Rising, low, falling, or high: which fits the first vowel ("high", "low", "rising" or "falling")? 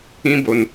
high